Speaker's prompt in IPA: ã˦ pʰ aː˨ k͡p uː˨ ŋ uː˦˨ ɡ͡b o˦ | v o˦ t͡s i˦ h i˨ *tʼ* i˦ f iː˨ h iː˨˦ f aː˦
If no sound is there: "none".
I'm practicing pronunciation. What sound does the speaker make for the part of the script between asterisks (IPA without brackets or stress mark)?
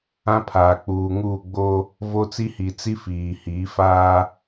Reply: t͡s